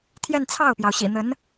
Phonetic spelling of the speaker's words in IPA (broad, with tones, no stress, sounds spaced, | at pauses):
t̪ʰ j ɛ˥˧ n t͡sʰ ɑ˥˩ ʊ̯ p j ɑ˩ ʊ̯ ɕ ḭ˨˩ n̪ ə˧˥ n